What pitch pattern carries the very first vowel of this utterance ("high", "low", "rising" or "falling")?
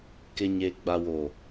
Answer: low